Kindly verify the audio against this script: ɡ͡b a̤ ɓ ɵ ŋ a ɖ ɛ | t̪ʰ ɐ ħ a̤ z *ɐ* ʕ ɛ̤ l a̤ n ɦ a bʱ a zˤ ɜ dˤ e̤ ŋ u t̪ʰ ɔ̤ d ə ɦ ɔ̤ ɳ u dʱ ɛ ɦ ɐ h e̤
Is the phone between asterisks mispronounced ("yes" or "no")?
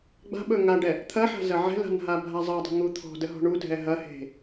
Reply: no